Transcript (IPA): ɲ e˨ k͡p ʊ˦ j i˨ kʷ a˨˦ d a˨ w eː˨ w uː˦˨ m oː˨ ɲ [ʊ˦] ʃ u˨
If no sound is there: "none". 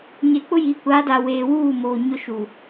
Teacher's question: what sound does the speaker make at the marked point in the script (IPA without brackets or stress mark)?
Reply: ʊ˦